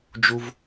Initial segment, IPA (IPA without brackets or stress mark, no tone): d͡ʒ